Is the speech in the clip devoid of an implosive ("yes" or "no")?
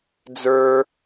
yes